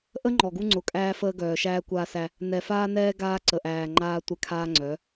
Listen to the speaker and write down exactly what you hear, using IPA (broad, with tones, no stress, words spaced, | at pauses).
ʔə˦ ŋ͡ǃɔ˨ɡu˦ ŋ͡ǀʊ˨kʼæː˦fəː˦ɡœː˨ ʃæː˦kʷaː˦sæ˦ | nɛ˨faː˦nɛː˦ ɡaː˦ǀə˨ʔæː˨ ŋ͡ǃaː˦tʷɛ˦ kʰaː˦ŋ͡ǀœ˨˦